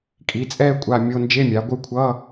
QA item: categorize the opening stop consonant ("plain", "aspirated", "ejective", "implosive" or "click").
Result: ejective